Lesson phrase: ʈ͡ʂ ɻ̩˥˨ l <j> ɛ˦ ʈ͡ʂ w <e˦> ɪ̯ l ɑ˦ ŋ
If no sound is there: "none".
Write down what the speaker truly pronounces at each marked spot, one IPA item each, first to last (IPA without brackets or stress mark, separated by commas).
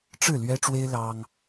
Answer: ɥ, e˦